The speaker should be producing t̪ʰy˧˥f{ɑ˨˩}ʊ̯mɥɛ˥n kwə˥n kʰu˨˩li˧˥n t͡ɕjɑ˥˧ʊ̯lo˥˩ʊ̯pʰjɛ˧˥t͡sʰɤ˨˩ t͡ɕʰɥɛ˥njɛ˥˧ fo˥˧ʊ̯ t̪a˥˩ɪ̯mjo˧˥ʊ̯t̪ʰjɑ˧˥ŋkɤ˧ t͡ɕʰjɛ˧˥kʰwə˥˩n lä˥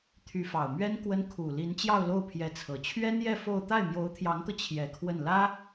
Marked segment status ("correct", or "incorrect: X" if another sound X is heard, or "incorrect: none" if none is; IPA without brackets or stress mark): correct